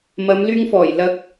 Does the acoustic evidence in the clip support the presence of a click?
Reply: no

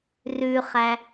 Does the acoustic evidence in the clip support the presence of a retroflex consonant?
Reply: no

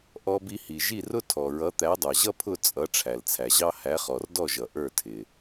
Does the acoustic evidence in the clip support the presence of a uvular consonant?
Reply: yes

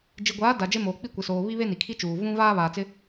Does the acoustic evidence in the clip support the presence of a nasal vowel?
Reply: yes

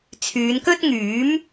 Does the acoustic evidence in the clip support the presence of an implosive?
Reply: no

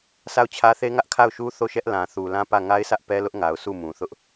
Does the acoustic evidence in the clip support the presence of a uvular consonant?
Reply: no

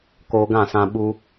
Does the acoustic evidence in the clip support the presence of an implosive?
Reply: yes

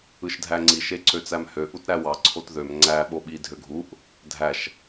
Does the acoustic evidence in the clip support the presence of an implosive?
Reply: yes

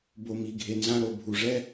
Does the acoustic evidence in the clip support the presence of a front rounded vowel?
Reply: no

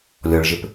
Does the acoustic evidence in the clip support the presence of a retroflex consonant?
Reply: yes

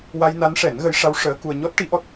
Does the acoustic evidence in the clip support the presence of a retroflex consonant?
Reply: yes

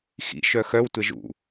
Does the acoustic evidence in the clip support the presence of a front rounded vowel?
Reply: yes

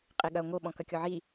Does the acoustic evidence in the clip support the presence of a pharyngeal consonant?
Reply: yes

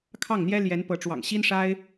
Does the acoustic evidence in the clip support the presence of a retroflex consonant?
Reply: yes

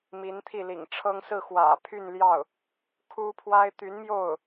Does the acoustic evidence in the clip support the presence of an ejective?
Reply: no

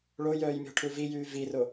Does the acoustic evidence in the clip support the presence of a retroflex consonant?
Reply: yes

